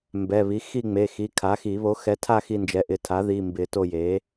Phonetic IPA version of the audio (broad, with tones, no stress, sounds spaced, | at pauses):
m b ɛ˩˧˩ β i˩˥ x i˦˨ ŋ͡m e˩˧˩ x i˩˧˩ kʰ a˩˥ x i˨˩˦ β o˩˥ x ɛ˩˥ tʰ a˦˨ x i˦˨ n d͡ʒ ɛ˩˥ ʔ ɪ˩˧˩ tʰ a˩˥ ð i˩˧˩ m b ɪ˨˩˦ t o˦˨ j e˩˥